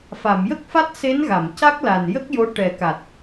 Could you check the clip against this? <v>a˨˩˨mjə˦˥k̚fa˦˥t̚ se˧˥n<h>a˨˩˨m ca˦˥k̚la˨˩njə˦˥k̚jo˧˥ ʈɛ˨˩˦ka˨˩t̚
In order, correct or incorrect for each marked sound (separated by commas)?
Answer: incorrect, incorrect